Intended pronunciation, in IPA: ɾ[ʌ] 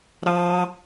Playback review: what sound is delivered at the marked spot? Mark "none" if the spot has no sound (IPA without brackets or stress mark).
ɑ